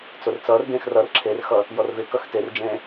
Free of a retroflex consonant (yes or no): yes